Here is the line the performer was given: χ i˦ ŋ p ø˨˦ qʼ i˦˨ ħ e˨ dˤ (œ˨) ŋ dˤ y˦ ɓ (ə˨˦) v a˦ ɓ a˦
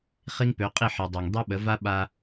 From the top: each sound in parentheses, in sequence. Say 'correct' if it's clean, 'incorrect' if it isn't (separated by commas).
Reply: correct, correct